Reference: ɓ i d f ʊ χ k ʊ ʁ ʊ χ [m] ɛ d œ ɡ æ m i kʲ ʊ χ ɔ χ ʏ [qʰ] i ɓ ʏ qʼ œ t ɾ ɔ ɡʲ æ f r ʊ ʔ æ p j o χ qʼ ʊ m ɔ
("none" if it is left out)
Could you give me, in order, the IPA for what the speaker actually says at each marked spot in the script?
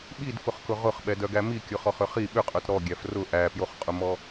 ɓ, χ

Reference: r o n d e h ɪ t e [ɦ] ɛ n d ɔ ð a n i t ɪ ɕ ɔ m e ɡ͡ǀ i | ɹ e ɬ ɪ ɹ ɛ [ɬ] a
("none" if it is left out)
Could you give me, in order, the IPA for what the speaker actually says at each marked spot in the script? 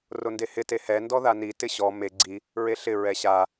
h, ɕ

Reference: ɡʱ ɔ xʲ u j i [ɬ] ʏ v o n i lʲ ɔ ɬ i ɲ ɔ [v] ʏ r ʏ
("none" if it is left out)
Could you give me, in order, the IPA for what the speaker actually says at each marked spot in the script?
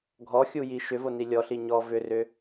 ʃ, v

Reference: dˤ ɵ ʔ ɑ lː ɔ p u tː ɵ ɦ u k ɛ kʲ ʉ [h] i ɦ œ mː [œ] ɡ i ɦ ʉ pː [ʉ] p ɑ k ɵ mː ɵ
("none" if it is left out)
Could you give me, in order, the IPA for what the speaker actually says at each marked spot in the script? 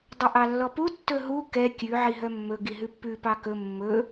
ʕ, ɵ, ʉ

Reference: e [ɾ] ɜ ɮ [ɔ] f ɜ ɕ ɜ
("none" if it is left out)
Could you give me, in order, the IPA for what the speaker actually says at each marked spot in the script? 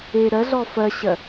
ɾ, ɔ

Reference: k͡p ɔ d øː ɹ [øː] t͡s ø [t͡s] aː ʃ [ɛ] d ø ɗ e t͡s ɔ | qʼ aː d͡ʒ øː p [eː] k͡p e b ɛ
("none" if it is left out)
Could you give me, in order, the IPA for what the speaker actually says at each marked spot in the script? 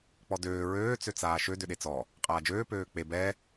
øː, t͡s, ø, øː

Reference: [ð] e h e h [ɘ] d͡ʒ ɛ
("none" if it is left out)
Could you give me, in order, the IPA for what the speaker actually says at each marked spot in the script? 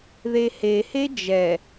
ð, e

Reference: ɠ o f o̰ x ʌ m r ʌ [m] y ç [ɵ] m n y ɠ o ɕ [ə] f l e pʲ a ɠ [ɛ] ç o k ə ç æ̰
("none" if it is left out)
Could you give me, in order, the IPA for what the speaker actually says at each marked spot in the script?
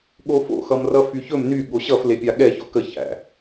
f, ɵ, ʌ, ɛ

